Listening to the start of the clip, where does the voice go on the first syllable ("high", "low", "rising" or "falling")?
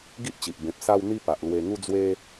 high